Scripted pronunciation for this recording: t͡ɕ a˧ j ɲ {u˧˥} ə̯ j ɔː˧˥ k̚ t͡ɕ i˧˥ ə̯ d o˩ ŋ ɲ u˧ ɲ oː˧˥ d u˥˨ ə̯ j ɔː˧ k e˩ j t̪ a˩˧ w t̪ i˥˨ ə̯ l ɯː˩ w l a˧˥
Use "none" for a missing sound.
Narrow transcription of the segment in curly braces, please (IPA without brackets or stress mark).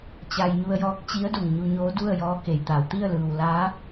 u˧